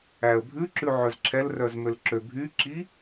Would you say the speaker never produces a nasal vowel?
yes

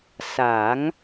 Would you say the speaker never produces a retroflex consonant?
yes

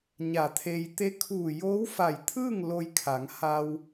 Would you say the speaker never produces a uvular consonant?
yes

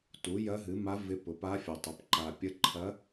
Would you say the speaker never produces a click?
no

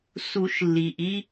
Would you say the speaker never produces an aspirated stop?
yes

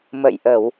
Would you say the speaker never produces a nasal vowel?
yes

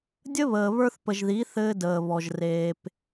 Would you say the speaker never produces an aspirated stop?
yes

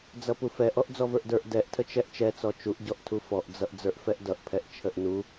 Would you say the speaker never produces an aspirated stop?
no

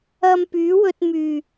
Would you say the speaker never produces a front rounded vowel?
no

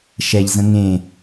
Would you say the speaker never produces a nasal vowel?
no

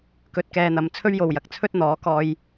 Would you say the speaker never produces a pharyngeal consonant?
yes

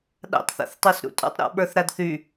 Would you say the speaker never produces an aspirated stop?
yes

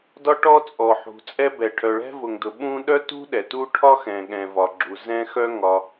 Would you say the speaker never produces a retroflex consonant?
no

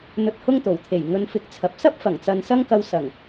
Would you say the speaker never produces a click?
yes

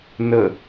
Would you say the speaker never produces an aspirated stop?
yes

